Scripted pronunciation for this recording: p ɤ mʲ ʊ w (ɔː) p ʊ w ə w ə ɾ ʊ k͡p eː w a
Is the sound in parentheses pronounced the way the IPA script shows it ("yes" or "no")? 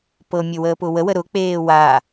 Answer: no